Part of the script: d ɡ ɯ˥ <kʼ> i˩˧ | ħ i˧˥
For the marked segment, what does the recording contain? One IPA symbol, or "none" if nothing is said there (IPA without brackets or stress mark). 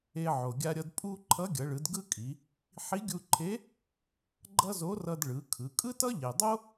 kʼ